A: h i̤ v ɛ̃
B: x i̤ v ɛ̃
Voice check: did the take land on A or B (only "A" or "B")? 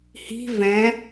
A